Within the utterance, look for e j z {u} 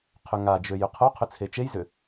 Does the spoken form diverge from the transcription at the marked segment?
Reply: yes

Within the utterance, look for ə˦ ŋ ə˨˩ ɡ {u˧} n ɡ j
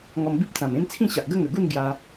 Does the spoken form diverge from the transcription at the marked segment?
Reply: yes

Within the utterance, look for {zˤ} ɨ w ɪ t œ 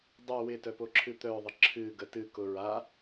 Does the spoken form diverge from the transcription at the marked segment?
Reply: yes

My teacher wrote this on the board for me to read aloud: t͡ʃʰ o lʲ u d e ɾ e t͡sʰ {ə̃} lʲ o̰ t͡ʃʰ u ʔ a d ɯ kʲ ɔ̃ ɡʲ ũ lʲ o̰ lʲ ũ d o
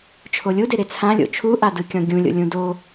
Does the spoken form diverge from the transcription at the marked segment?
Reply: yes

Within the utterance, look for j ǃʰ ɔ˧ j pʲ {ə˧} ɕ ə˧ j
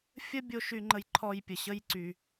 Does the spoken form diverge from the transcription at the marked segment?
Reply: yes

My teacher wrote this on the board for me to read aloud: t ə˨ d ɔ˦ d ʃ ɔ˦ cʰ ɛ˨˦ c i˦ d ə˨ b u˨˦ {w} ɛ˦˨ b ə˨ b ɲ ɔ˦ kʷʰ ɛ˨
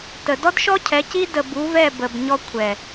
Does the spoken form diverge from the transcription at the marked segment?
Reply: yes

